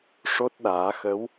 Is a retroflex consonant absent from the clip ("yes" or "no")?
no